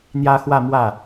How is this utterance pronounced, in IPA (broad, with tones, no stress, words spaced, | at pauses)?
n̪jä˥xwä˥˧mwä˥˩